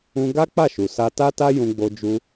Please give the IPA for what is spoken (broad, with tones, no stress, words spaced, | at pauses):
ũ˧ɡa˦ k͡pa˦˨ʃu˨sa˧ ta˦ta˦ jũ˧ɡ͡bo˧d͡ʒu˧